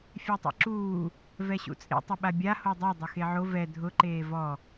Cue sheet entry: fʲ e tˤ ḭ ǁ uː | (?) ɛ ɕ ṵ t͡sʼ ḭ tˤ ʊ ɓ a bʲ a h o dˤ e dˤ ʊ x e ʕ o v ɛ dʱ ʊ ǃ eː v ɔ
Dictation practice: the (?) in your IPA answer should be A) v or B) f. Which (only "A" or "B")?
A